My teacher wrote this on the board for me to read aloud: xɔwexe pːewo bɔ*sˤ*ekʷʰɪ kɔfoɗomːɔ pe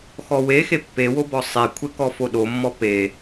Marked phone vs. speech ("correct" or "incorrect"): correct